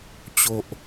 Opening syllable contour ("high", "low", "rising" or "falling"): high